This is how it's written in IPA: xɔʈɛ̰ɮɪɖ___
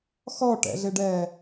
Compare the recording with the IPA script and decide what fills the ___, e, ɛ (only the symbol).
ɛ